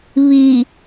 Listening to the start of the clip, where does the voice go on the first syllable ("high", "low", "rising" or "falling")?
low